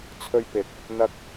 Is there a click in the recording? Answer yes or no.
no